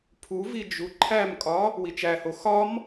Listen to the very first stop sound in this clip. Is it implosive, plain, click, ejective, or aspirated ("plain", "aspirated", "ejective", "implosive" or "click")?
aspirated